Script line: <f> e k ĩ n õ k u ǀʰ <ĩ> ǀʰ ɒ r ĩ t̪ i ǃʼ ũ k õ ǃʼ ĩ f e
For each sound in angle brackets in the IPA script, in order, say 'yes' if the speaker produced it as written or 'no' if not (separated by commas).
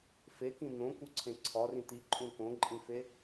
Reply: yes, no